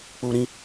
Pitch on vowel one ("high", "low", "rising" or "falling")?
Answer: low